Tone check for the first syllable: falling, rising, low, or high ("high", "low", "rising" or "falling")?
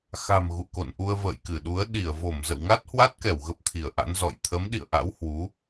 low